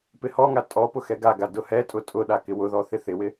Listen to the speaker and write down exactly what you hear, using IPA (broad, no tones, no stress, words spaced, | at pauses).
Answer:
pɪhɔŋa tʼɔ pʊxɛɡaɡa dʊhɛtʼʊ tʼʊ ɗakɪwʊðɔ θɪθɪwɪ